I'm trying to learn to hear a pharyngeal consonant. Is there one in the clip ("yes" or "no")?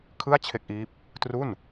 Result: no